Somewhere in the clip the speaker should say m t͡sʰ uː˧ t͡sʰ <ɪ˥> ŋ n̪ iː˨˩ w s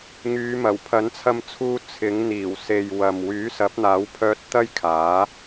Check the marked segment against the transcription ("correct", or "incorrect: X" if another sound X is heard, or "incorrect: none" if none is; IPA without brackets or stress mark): incorrect: ɪ˨˥